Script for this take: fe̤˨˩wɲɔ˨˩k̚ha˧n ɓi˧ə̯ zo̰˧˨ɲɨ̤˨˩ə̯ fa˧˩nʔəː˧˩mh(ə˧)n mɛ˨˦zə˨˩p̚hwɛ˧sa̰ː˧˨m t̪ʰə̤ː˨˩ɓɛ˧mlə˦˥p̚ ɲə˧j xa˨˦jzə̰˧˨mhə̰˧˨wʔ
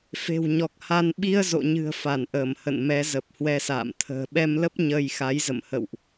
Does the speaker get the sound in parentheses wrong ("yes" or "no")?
yes